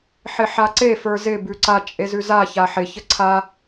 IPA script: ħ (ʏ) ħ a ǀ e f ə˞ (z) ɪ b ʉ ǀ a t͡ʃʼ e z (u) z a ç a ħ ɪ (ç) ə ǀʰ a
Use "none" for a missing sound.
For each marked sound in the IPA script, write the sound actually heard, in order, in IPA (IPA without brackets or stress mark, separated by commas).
ɪ, z, ʉ, ç